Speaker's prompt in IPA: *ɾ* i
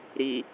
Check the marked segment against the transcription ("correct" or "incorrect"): correct